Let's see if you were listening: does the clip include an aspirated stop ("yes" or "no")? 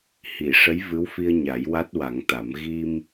no